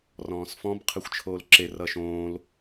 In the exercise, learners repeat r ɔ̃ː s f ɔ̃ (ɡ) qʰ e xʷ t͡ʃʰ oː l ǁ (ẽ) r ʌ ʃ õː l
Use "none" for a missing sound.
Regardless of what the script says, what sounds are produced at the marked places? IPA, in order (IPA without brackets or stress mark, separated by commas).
b, e